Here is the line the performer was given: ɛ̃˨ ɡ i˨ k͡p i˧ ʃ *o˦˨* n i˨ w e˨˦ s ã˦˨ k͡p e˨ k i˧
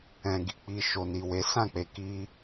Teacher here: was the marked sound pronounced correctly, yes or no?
no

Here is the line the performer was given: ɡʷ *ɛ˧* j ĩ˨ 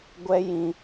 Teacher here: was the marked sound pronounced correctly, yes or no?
yes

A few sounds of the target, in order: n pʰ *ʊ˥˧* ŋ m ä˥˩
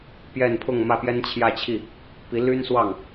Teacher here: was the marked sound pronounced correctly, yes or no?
yes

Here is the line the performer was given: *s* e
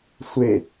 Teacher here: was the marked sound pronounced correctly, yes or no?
no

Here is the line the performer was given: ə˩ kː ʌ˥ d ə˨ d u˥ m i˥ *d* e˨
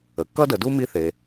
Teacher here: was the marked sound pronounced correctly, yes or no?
no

